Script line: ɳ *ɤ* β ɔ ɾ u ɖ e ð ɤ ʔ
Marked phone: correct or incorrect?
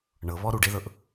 correct